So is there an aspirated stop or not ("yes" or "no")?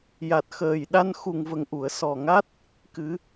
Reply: no